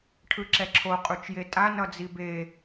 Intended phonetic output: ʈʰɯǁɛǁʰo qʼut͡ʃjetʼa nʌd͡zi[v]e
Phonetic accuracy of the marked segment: incorrect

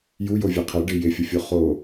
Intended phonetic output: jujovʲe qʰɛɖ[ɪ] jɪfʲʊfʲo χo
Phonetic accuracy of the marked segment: correct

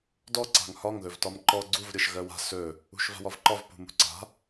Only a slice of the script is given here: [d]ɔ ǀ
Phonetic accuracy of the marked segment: correct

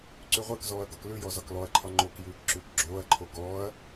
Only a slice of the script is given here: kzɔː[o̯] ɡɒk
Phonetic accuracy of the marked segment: incorrect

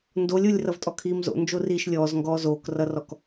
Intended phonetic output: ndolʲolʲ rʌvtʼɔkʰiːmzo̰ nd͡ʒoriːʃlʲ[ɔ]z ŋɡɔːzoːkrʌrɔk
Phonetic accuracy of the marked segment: incorrect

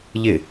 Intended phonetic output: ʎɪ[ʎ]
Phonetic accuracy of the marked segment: incorrect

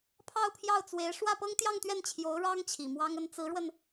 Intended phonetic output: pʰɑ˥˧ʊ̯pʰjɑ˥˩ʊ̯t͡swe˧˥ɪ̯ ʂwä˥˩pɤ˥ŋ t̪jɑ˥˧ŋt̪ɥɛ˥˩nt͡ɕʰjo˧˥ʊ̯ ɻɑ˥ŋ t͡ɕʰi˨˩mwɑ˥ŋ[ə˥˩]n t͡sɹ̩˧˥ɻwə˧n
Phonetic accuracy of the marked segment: incorrect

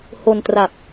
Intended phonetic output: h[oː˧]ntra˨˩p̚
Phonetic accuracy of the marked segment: incorrect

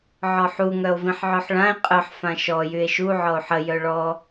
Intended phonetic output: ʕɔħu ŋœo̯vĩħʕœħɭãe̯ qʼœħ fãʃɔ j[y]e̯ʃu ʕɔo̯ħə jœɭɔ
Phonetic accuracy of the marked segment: correct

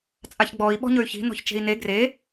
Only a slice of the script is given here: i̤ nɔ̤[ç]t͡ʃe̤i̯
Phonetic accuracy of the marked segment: correct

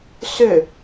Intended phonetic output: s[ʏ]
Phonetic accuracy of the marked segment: correct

